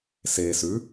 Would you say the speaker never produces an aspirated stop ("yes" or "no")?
yes